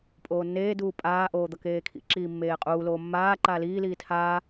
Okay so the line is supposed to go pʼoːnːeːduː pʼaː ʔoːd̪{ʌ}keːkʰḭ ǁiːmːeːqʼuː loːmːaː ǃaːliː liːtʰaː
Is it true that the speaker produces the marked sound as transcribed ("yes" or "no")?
yes